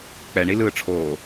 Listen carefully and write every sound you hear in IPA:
k͡p ɛ ɳ i l ɯː ʈ͡ʂʰ oː

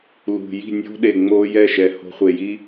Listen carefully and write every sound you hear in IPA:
l ṳ˨ j i̤˦˨ nʲ o̤˦ ɗ e˨ ŋ͡m o˧ j ɛ˦˨ ʃ ɛ˨ h o̤˧ χʷ e˨ j i˦

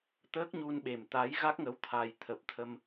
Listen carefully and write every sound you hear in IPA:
t̪ əː˦˥ k̚ ɲ u˧ n ɓ e˨˩ m t̪ a˨˦ j ɣ a˦˥ k̚ ŋ ə˨˦ w t̪ʰ a˨˩ j t̪ʰ ə˨˩ p̚ t̪ʰ ə˧ m

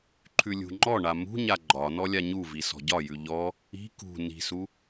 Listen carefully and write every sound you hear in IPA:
ǃʰ ʉ lʲ ṳ ŋ͡ǃ ɔ ɳ a m ṳ ɲ a ɡ͡ǃ ɒ n ɔ lʲ a ɲ u v i s ɔ̤ ɟ ɒ j ʉ ʎ ɔ | i̤ k ṳ n i̤ s u

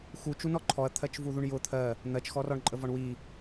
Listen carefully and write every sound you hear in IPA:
x u t͡ʃ u n ɔ ǃʰ ɔ ɐ̯ t̪ʰ ɜ t͡ʃ v u ð u ɳ j ʊ t̪ʰ ɜ | n̪ ɜ t͡ʃ x ɔ r ɔ ɳ ǃʼ ə v ɒ ɳ w i

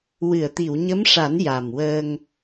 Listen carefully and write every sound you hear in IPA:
w ɨ˨˩˨ ə̯ t̪ i˨˩˨ w ɲ ə˧˥ m ʂ a˨˩˦ n j a˨˩ m w əː˧ ŋ

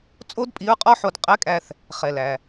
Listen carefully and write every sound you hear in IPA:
t͡sʼ o˥ d pʼ i˧˥ ɹ qʼ ɔ˥ ħ o˧ d qʼ ɛ˧˥ kʼ æ˧ θ | χ ɛ˩ l æ˩

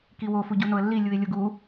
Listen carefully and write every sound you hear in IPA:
k i w o f u ɟ u n o ə̯ lː i lʲ u ɪ̯ lʲ o ɡ u

